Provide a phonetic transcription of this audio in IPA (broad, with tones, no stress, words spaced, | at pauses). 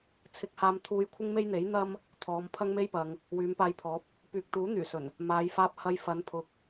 t͡sʰɪ˧k̚haː˧m t̪ʰuː˧jkʷʰɪ˥ŋme˥jn̪e˨˥j n̪ɐ˥m | t̪ʰɔː˨˧m pʰɐ˥ŋme˥jpɐ˨˧ŋ | wyː˨˧mpaː˧jpʰɔː˨˥p̚ | pyː˨k̚t̪uː˨˥ n̪yː˨˩sɵ˨˩n | maː˨˧j faː˧p̚ hɐ˧jfɐ˨˧npʰʊ˨˥k̚